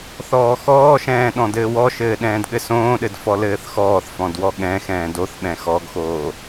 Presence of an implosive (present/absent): present